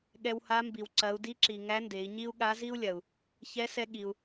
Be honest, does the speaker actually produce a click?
yes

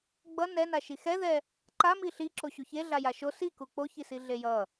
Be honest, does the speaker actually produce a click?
yes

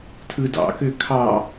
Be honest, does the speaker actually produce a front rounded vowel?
yes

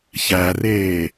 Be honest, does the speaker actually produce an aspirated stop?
no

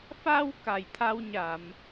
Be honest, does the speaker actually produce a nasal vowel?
no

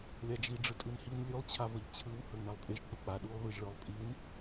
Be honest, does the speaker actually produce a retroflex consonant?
yes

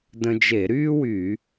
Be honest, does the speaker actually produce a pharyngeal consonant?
no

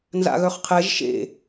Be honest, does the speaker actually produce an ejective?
no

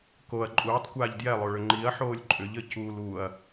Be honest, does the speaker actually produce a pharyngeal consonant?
yes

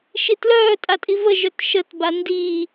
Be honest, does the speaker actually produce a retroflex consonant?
no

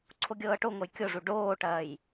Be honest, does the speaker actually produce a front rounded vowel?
no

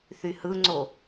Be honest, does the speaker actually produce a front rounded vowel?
yes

